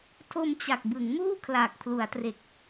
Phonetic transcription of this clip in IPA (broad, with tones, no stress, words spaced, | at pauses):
tʰo˧mt͡ɕa˨˩k̚bɯ˩˦ŋmuː˥˩ kʰlaː˨˩k̚pʰlu˩˦a̯tre˨˩k̚